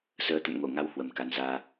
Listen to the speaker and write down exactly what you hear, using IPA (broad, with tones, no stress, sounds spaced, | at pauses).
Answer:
s əː˨˦ t̪ ə̰˧˨ n ŋ o˧˩ ŋ a˨˦ w h w ə˨˩ m k a˨˦ n z aː˧